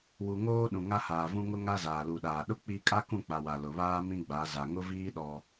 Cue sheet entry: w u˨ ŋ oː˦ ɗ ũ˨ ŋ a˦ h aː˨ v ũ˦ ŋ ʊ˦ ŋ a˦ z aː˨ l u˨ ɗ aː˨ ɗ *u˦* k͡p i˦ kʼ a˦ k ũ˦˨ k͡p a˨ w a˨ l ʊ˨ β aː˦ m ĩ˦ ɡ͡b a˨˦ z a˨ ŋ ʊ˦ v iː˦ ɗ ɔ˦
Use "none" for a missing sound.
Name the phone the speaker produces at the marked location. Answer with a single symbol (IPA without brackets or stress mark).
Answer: ʊ˦